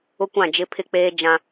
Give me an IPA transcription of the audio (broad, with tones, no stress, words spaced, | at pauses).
ʊ˦kʷã˦˨ d͡ʒɪ˦pʰɪ˦k͡peː˦ d͡ʒã˦